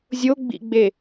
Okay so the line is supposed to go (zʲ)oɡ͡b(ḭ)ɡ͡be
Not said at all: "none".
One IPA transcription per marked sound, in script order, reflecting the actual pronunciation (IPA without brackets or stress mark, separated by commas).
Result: zʲ, ḭ